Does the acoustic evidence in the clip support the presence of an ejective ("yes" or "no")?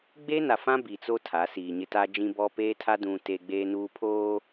no